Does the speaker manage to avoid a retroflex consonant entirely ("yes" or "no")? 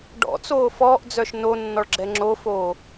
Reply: no